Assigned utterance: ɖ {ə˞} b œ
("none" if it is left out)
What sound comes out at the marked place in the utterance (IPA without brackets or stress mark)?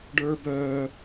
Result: ə˞